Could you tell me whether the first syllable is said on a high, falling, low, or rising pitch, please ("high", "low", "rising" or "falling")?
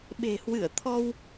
low